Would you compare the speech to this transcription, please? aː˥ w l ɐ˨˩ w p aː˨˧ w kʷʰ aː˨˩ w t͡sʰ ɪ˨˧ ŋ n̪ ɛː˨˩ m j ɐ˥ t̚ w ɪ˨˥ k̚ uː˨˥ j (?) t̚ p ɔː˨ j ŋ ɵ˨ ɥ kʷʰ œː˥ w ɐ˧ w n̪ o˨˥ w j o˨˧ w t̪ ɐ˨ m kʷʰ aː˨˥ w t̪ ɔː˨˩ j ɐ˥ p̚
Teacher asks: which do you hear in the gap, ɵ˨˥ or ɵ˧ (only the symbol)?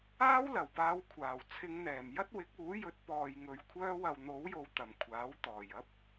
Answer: ɵ˨˥